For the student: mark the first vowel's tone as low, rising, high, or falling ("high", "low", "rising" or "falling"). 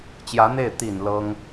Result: rising